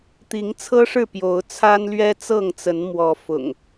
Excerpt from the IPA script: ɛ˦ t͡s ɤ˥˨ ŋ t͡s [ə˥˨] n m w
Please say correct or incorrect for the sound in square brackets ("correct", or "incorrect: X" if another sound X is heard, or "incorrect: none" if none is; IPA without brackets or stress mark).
incorrect: ə˨˦